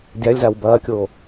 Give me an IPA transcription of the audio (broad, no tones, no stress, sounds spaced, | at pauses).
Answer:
dʲ a lʲ z a w b ɐː kʲ oː